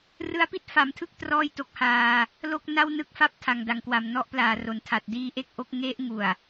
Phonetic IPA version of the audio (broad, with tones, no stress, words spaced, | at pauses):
rɯ˧a̯pi˥˩t̚fa˩˦mtʰɯ˦˥k̚ trɔː˥˩jto˦˥k̚haː˧ | lo˥˩k̚na˥˩wnɯ˦˥k̚ fa˥˩p̚tʰa˨˩ŋda˩˦ŋkwa˨˩m nɔ˦˥ʔplaː˨˩ro˩˦n tʰa˨˩t̚diː˦˥ʔe˥˩k̚ʔo˥˩k̚ ŋe˦˥ʔŋu˨˩a̯